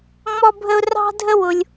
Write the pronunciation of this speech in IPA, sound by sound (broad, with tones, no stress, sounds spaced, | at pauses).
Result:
ŋ͡m ɔ˦ bʱ ə˦ ʊ̯ r ɑ̤˦ dʱ ə˦ w ʊ˧ lʲ